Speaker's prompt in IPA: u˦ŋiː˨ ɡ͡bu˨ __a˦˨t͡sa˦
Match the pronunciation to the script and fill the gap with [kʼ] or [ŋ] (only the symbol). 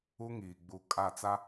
kʼ